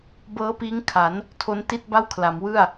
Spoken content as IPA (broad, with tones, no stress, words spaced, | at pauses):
bɤː˦˥piː˦˥ŋ kʰa˩˦n | tʰo˦˥nti˥˩t̚ ba˥˩wkʰla˩˦mwɯ˥˩a̯